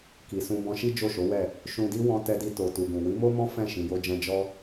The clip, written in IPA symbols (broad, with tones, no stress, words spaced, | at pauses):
ki˨sũ˧ bɔ̃˧ʃi˦ d͡ʒo˦˨ʃo˨˦wɛ˦˨ | ʃũ˧di˦ wɔ̃˦ tɛ˧di˧to˨ tu˨ɡũ˨ wi˨˦mo˦mɔ̃˦ fɛ̃˦˨ ʃĩ˨jo˧d͡ʒɛ̃˧ d͡ʒɔ˧